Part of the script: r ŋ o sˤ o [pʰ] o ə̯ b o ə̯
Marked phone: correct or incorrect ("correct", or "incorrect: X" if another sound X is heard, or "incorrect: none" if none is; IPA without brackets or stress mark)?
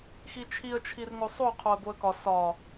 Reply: incorrect: qʰ